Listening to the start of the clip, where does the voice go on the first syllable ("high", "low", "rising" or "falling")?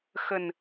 low